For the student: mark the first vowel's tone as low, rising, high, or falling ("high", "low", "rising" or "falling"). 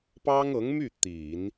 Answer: high